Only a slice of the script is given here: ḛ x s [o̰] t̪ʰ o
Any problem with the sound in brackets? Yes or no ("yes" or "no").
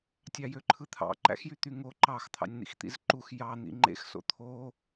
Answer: no